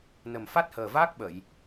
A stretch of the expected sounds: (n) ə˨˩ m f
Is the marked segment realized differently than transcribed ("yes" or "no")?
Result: no